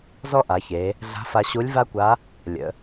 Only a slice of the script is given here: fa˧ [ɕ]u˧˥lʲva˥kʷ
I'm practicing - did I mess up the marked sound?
no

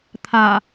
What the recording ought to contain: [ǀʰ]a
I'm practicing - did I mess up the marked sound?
yes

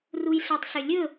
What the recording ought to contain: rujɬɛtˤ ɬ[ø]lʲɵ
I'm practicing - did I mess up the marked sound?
no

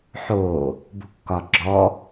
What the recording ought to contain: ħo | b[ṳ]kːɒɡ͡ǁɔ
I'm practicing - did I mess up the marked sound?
no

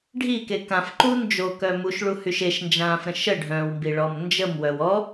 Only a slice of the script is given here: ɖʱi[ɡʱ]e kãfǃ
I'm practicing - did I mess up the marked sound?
yes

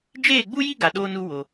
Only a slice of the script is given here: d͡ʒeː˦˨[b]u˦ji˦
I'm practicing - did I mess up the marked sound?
yes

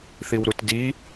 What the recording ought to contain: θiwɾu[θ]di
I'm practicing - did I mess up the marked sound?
yes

